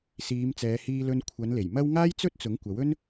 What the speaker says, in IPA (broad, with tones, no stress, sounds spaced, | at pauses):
s iː˨˧ m t͡s ɛː˨˧ h iː˧ l ɵ˧ n kʷʰ ɐ˨˧ n l e˨˩ j m ɐ˥ w ŋ aː˥ j t͡s ɵ˥ t̚ t͡s ʊ˨˥ ŋ kʷ ɐ˨˥ w ɵ˥ n